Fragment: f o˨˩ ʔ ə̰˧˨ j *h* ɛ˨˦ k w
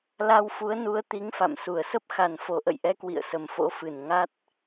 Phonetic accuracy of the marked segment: incorrect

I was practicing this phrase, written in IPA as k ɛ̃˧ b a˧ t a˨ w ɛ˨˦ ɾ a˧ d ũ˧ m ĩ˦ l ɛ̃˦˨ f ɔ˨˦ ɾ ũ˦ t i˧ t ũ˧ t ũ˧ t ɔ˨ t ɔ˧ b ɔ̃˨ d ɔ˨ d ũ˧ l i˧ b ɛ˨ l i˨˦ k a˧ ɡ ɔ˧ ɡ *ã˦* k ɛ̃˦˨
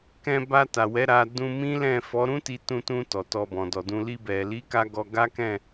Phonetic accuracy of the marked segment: incorrect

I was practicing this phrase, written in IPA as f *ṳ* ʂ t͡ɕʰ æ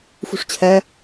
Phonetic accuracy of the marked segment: correct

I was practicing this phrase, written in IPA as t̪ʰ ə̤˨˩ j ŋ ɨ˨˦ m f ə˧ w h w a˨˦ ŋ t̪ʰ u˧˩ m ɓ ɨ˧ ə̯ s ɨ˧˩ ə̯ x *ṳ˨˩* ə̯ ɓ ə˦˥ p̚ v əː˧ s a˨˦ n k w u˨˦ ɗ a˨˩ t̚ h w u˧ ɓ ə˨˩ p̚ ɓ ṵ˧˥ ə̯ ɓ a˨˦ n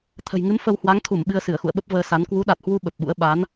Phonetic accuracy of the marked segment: incorrect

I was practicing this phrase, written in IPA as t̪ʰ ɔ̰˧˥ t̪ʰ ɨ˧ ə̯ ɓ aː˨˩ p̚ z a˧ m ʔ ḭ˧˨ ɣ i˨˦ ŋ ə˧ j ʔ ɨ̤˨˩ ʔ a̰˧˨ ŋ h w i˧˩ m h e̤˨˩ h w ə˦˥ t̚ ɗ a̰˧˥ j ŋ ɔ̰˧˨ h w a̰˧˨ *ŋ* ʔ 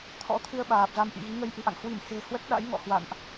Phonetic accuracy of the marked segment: incorrect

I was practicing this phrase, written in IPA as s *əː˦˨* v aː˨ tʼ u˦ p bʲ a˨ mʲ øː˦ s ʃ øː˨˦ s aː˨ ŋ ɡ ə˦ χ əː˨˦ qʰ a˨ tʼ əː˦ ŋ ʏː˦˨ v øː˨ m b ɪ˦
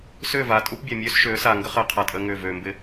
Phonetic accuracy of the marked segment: incorrect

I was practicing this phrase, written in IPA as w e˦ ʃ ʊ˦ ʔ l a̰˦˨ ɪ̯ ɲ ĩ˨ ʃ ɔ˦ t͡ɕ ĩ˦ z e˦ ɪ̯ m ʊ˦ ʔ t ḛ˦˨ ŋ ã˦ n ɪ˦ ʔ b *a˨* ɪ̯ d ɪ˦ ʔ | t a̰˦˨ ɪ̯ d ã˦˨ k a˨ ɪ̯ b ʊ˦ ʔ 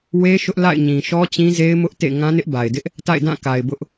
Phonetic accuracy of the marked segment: correct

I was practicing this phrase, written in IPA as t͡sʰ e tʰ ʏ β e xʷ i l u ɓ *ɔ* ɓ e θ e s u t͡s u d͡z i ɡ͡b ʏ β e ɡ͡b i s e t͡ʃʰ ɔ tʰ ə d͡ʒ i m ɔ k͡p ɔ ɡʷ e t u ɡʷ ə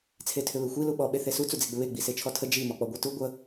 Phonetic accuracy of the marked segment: correct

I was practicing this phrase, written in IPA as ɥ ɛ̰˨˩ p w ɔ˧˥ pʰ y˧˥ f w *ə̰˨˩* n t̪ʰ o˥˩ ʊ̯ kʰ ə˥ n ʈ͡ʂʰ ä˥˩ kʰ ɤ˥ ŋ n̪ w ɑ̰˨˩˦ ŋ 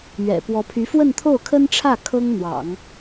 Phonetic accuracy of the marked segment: incorrect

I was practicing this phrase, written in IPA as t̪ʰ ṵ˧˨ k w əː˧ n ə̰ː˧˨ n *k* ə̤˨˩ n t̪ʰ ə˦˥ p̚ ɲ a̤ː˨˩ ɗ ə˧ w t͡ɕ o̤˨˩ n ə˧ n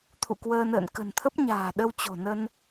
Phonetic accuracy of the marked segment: correct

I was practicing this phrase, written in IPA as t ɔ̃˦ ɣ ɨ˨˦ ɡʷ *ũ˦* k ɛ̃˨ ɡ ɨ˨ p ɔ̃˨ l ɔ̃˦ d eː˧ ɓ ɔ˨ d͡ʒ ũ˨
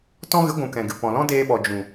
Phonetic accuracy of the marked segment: incorrect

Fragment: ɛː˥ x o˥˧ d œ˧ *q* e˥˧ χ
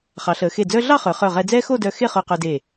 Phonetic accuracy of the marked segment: incorrect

